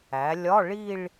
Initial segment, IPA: æ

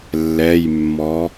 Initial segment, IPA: lː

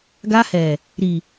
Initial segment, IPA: ɡ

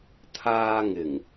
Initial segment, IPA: t̪ʰ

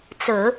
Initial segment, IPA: t͡s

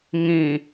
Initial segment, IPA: ŋ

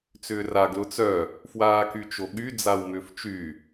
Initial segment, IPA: t͡s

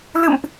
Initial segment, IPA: l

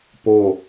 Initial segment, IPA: p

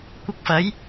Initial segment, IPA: kʷ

